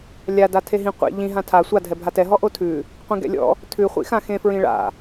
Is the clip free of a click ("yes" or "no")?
yes